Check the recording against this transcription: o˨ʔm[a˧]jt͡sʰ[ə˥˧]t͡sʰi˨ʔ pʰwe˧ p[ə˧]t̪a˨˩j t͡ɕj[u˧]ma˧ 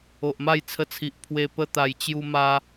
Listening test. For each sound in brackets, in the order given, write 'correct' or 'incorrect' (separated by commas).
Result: incorrect, incorrect, correct, correct